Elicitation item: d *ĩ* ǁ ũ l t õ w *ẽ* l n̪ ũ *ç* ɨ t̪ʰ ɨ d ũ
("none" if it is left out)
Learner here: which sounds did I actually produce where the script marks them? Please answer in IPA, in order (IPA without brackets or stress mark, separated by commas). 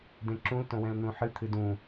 ẽ, ɛ̃, ħ